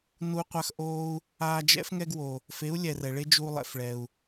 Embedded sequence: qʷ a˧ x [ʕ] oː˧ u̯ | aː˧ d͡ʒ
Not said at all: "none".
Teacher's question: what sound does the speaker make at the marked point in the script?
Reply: ʔ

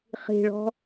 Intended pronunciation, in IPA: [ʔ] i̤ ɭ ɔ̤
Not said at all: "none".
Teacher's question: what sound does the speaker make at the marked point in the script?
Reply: χ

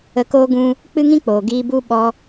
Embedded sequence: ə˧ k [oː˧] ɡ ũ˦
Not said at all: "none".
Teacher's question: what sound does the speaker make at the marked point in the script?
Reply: oː˦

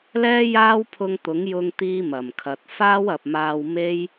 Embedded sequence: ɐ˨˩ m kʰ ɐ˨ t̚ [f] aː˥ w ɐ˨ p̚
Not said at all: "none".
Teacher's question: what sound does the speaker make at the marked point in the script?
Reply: f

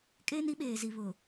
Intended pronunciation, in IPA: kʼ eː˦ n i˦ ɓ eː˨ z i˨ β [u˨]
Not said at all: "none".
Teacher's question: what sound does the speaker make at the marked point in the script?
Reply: ʊ˨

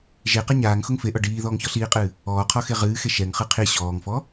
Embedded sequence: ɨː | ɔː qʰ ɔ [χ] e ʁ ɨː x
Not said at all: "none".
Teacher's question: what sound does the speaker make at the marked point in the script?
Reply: x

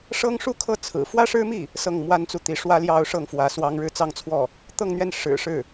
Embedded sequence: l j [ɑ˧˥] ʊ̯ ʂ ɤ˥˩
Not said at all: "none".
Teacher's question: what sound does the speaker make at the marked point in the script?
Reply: ɑ˥˧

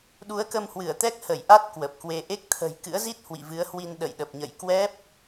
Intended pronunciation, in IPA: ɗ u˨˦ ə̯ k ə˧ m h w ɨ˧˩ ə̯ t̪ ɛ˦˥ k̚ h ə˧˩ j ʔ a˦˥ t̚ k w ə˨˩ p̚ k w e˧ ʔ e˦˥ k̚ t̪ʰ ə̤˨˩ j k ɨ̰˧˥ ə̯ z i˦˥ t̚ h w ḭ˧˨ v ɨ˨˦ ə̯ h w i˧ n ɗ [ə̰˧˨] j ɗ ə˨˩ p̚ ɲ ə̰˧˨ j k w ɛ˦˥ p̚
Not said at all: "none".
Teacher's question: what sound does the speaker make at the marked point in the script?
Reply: ə̰˧˨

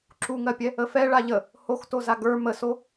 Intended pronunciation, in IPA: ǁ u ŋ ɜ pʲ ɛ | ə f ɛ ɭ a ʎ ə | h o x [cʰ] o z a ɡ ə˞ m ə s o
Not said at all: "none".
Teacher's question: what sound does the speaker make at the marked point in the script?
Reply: t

